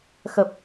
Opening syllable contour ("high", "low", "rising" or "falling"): low